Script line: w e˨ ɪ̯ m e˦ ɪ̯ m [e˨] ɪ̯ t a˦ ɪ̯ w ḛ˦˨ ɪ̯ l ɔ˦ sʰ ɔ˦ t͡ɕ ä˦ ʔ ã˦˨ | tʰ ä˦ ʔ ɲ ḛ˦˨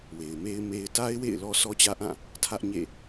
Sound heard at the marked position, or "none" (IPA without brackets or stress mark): e˦